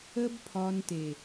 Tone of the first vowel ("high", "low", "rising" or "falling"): high